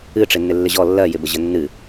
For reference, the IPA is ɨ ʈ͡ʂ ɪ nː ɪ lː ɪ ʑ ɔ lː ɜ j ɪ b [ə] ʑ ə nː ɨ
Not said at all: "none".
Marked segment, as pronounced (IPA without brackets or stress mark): ə